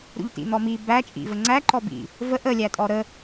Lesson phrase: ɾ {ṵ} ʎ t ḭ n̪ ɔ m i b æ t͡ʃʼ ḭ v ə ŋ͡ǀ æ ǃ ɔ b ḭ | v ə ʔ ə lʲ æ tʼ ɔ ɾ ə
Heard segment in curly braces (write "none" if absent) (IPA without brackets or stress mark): ṵ